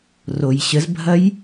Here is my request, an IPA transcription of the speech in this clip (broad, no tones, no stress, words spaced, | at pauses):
rojɕəzbʱɐj